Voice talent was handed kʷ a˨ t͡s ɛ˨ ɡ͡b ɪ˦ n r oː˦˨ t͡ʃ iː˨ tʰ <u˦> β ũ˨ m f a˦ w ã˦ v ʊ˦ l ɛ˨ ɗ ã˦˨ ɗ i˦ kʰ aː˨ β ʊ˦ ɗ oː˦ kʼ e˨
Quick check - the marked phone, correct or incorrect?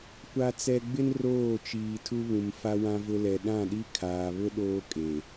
correct